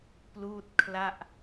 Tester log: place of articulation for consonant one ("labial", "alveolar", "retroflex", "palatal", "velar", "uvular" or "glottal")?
labial